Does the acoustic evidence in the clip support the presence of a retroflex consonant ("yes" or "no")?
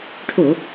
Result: yes